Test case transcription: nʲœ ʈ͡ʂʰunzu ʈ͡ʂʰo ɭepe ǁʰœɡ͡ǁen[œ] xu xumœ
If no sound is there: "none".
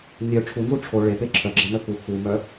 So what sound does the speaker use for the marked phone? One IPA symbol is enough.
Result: œ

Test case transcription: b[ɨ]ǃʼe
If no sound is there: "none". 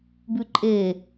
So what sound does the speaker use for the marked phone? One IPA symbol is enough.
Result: ʉ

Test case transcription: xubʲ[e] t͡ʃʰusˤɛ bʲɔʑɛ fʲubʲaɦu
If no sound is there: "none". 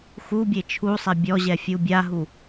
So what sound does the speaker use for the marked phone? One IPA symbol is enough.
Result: e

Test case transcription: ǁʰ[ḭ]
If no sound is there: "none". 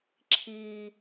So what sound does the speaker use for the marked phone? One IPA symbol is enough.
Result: i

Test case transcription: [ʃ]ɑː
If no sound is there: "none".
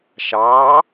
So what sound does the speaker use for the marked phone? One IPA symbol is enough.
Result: ʃ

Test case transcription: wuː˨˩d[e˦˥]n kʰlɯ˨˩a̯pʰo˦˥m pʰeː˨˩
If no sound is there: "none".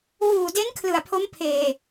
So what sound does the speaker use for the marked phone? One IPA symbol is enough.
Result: e˦˥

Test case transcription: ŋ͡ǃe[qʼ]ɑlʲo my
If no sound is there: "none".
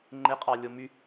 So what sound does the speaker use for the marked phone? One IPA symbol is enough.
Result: qʼ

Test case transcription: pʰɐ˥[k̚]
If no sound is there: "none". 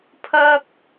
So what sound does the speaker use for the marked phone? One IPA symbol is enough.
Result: k̚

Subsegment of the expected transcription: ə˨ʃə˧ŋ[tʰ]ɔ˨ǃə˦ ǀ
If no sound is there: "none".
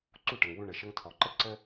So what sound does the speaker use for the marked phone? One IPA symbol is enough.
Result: tʰ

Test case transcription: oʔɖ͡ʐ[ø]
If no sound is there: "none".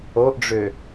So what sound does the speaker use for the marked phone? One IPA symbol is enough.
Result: ø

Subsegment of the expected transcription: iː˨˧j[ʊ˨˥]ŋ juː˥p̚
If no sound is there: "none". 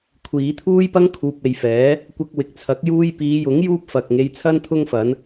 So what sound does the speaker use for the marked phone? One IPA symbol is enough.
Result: ʊ˨˥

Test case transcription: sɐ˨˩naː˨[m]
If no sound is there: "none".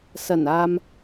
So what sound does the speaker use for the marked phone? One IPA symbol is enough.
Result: m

